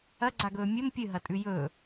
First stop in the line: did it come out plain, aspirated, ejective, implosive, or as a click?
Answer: click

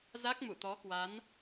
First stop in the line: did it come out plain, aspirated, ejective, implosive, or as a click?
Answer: plain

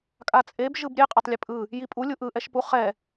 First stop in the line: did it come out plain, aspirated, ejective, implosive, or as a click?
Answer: ejective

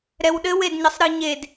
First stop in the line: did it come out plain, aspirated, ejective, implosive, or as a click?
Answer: implosive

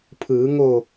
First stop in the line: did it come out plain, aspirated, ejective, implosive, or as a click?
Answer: aspirated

